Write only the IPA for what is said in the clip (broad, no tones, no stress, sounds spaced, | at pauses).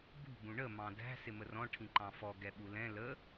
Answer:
b ṳ b ũ ɳ ə m ɑ̃ d æ̤ s ɪ m ə r ɔ̃ ʈʰ ĩ ǃ ɑ̃ f ɔ ɡ ɛ ɓ u l ɛ̃ l ə